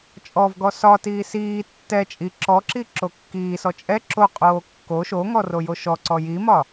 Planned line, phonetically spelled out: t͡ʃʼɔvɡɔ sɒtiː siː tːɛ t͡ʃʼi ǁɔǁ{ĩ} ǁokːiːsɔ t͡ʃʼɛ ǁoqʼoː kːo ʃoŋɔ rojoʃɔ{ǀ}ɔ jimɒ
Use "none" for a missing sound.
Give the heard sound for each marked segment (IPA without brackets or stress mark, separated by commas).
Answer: i, ǀ